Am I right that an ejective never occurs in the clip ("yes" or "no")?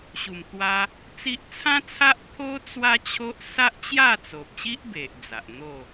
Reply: yes